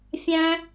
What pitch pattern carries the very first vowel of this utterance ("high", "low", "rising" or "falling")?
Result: high